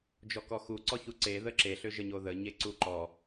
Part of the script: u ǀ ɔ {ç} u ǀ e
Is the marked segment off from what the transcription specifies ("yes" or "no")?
no